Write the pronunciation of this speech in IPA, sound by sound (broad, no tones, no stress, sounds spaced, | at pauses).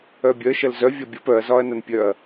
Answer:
œ bʲ œ ʃ ɐ l z œ vʲ ɒ bʲ ɐ p œ ɐ̯ z ɒ ɐ̯ n ɐ n pʲ œ ɐ̯